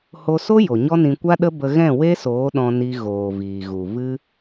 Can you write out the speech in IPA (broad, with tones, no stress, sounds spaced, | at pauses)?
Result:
h o˧ s o˦ j o˨ ɲ ɔ˦ n ĩ˧ kʷ a˦ ɗ ə˦ b ə˧ ɣ ɛ̃˦˨ w e˦ s oː˨˦ ɗ ɔ̃˧ n i˧ ɣ oː˨ v iː˨ ɣ u˨ v ɨ˦